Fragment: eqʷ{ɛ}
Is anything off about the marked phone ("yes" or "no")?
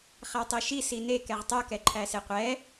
no